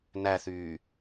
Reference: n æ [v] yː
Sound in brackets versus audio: incorrect: θ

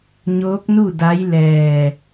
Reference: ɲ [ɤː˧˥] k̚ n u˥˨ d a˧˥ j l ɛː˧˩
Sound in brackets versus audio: incorrect: oː˧˥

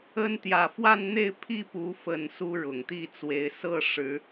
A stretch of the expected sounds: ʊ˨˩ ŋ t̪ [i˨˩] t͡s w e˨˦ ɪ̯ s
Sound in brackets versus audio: incorrect: i˥˨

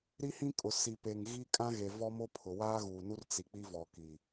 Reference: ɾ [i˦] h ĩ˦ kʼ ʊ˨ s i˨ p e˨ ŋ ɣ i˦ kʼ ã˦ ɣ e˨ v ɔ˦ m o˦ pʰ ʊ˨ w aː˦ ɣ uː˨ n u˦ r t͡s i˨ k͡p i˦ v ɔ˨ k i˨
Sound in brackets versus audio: correct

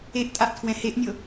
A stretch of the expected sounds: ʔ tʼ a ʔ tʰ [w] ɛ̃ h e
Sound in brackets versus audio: correct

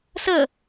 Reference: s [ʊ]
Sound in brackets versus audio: incorrect: ə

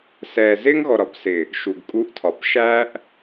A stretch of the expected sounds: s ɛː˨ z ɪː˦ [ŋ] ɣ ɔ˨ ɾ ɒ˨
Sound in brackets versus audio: correct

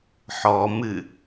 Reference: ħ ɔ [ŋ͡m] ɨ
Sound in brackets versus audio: incorrect: m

